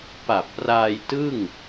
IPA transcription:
p a˨˩ p̚ r aː˧ j t ɯ˥˩ ŋ

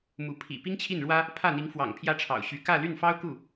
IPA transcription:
m u˧˥ pʰ ḭ˨˩ p i˥ ŋ t͡ɕʰ i˥˩ n ɻ w ä˥ | pʰ ä˥˩ n̪ i˧˥ ŋ f w ɑ̰˨˩ ŋ pʰ j ä˥˩ ʈ͡ʂʰ ɑ̰˨˩ ʊ̯ ɕ y˧˥ k ä˥˧ l y˥˩ n f ɑ˥ ʊ̯ k u˥˩

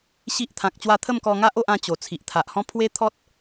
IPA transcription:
ɕ i˦ ʔ t̪ʰ ã˨ k̚ t͡ɕ w a˥˧ t̪ʰ ə˥˧ m k ɔ˧ ŋ a˦ ʔ o˦ ʔ ã˥˧ t͡ɕ o˨˩ t͡sʰ i˨ ʔ t̪ʰ a˨ ʔ h ɔ̃˥˧ pʰ w e˦ t̪ʰ ɔ˦ t̚

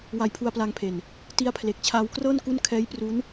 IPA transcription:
w a˧ j pʰ u˧ a̯ p l a˧ ŋ pʰ e˨˩ n | t i˦˥ a̯ pʰ l e˨˩ k̚ t͡ɕʰ aː˧ w k r ɤː˥˩ n k u˥˩ n kʰ ɛː˦˥ j p r u˦˥ n

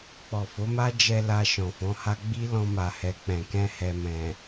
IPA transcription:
k͡p ɔ˨ f o˨˦ m a˦ d͡ʒ ɛ˧ l a˧ ʃ ɔ̃˨ f ɔ̃˨˦ h a˦ ɡ͡b i˦ l ɔ̃˧ m a˨ h ɛ˨ k͡p ɛ̃˨ k ɛ̃˧ h ɛ˨ m ɛ̃˨

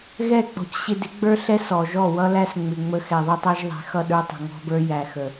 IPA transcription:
ɣ ɛ˦˨ k͡p ɔ̤˨ c ɕ ɪ˧ d ɪ˨˦ ɡ͡b ə˞˦ ɬ ɛ˦ s ɔ˨ ʒ ɔ˦˨ w ʌ˦ l æ˦ s ŋ͡m ɪ˨ ŋ͡m ə˧ x ɛ˨ ðˤ ə˦ tˤ æ˦ ʒ ðˤ ɛ̤˨˦ x ʌ˧ ɗ ə˞˧ tˤ ə̤˨ ŋ ɔ̤˧ b ə˞˧ j æ˨ x ə˨

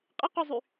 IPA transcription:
qʼ ɪ q y zˤ y

